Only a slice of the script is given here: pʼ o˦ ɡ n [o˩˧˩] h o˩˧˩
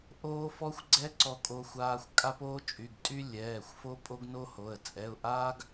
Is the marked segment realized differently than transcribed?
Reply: yes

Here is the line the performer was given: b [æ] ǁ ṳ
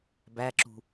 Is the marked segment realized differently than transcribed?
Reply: no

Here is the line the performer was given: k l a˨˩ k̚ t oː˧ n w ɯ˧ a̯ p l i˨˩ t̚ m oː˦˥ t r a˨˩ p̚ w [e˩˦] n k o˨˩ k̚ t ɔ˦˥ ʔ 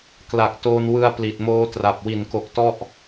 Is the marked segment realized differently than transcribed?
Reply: yes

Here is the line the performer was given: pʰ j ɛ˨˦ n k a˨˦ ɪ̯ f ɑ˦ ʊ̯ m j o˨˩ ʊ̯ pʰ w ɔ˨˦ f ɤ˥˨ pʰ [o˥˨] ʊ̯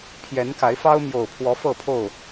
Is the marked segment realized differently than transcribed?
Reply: no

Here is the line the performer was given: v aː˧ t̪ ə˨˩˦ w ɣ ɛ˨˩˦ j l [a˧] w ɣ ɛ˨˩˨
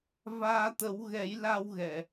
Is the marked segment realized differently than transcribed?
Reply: no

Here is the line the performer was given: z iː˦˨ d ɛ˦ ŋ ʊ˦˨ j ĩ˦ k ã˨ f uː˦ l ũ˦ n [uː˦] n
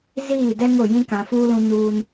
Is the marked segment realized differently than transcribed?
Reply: no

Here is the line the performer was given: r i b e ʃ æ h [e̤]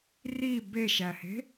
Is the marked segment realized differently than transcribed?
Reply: no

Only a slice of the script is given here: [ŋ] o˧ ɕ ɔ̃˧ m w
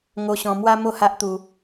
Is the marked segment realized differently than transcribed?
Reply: no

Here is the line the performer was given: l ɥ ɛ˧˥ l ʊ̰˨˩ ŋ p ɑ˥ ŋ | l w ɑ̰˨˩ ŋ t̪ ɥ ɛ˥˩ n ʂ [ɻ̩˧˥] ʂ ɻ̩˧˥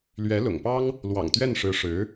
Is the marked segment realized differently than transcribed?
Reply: no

